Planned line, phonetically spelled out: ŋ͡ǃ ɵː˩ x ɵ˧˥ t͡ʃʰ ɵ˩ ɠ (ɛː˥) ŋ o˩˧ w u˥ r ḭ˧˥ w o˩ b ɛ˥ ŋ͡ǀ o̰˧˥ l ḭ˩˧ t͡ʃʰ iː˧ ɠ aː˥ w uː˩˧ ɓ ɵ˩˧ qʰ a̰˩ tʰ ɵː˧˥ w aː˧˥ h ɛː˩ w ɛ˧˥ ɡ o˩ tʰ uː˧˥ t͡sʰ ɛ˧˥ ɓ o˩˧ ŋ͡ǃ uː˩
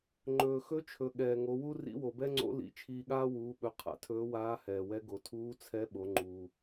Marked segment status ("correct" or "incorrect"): incorrect